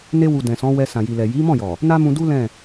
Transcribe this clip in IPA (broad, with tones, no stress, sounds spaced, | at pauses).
n e˧ w u˨ d ɛ̃˨ s ɔ̃˨˦ w ɛ˧ s ã˨ j i˨ l ɛ˨ j i˨˦ m ɔ̃˦˨ j ɔ˨ | n a˦ m ũ˧ d u˦ l ɛ̃˦˨